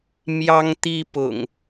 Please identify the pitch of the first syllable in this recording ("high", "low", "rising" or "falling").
high